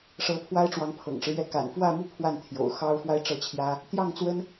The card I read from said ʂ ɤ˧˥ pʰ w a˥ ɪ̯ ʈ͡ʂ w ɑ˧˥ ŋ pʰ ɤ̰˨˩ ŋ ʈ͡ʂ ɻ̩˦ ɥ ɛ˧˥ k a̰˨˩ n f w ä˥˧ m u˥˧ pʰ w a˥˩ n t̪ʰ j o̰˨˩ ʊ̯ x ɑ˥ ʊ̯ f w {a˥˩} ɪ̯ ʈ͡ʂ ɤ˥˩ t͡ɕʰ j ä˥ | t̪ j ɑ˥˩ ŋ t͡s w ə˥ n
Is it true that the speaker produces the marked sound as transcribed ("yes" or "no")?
no